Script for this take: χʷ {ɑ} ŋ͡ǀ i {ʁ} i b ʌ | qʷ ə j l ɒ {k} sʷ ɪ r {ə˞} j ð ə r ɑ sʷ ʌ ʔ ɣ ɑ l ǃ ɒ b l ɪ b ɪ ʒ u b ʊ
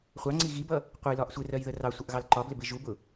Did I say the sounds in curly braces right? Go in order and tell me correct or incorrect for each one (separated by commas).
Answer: correct, incorrect, incorrect, incorrect